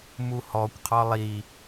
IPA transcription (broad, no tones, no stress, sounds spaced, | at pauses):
m u h ɔ kʷ qʰ ɒ lˠ i